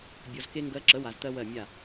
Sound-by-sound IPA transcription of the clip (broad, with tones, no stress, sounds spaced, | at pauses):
bʲ ɔ˧ z k e˦ ŋ ɡ ɜ˧ ǁ ə˨˦ w a˧ z t̪ ɜ˦ w ɜ˦˨ mʲ a˦˨